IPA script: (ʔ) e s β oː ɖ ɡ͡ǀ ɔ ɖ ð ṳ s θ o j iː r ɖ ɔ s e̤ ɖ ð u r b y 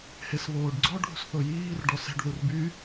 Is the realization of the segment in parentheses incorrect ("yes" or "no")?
yes